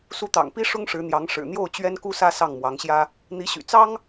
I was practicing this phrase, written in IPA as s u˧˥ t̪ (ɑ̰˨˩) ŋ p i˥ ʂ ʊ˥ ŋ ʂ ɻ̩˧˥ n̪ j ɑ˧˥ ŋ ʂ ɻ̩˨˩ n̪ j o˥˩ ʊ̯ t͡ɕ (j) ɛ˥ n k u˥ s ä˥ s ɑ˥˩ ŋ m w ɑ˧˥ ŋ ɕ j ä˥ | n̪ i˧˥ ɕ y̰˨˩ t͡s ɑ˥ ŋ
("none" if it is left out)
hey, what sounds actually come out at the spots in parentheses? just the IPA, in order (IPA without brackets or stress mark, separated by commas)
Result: ɑ̰˨˩, ɥ